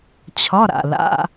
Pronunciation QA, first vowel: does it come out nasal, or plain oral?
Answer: oral